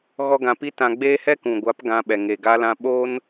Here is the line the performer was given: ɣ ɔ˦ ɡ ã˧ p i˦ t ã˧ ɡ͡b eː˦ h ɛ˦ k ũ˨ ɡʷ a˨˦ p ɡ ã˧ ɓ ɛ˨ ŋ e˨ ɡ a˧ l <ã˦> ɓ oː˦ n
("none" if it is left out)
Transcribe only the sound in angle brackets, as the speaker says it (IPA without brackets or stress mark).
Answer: ã˧